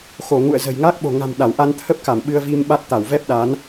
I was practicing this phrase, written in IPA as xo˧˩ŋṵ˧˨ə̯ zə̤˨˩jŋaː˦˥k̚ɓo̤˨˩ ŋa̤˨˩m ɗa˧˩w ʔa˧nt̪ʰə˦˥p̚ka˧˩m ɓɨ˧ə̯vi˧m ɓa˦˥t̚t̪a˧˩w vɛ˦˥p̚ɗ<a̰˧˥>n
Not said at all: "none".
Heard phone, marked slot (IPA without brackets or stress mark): a˨˦